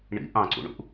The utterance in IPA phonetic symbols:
ɳ ḭ ʔ ɑ̃ ǀ ṵ ɳ ṵ ʔ

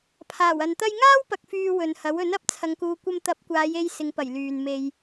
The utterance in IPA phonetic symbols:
pʰ aː˨˩ w ɐ˨ n t̪ ɐ˥ j ŋ aː˥ w p ɐ˨ k̚ f yː˨ w ɵ˨ n h ɐ˨˥ w ɵ˨˥ n ɐ˨˥ p̚ t͡sʰ ɐ˨ ŋ k uː˨ kʷ ɐ˧ m t̪ ɐ˨˥ p̚ kʷ aː˨˧ j e˧ j s ɪ˨˧ ŋ p ɐ˨˩ j l yː˨ n m e˧ j

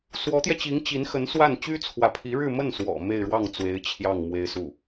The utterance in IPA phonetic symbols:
s w ɔ˧˥ t̪ j ɛ˧ t͡ɕ i˧˥ ŋ t͡ɕ i˧˥ n x ə˧˥ n s w a˥˩ n t͡ɕ y˥ t͡sʰ w ä˧˥ pʰ i˧˥ ɻ ɻ̩˥˧ m ə˥˩ n s w ɔ̰˨˩ m e˥˧ ɪ̯ ɻ w ɑ˥˩ ŋ t͡s w e˧˥ ɪ̯ t͡ɕʰ j ɑ˥˩ ŋ m w e˥ ɪ̯ s u˥˩

